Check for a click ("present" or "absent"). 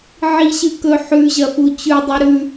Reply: absent